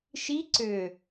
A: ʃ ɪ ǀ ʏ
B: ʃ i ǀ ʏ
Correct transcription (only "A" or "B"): B